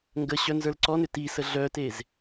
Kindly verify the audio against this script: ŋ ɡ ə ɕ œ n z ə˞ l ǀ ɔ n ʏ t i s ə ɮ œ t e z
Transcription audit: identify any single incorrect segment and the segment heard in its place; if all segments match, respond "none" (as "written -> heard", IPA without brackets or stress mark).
none